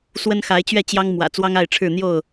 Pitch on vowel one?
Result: high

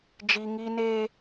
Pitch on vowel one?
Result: high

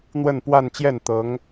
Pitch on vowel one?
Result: falling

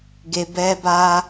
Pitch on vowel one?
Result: low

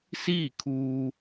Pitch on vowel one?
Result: falling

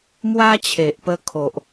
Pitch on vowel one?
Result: high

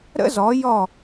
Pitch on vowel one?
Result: high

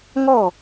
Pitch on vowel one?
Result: falling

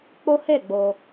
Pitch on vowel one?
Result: high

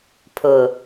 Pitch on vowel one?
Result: low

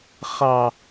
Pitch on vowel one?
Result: low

